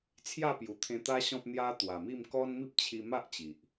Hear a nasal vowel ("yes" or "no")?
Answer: yes